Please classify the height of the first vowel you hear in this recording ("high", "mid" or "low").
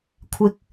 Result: high